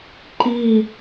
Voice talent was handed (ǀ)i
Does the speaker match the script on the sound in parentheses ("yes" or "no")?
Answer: no